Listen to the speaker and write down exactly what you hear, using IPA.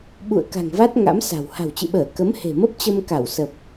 ɓ ṵ˧˨ ə̯ k a̤˨˩ ŋ v a˦˥ t̚ ŋ a̰˧˥ m s a̤˨˩ w h a̤˨˩ w t͡ɕ ɨ̰˧˨ ɓ əː˧˩ k ə˨˦ m h e̤˨˩ m ə˦˥ p̚ t͡ɕ ə˧ m k a˧˩ w s ə˨˩ p̚

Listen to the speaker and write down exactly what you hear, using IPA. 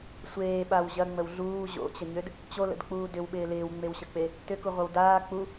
sʷ eː ɓ a w ʑ ɐ ŋ͡m ə w ɮ uː ʑ o̰ t͡ɕ ə ɲ ø d | t͡ɕ o l ə̰ d k͡p uː d ʏ w ɓ ɪː l ɪː w ŋ͡m e w ɕ ə k͡p e | t ʏ k u ʁʷ ɐ w d aː k͡p u

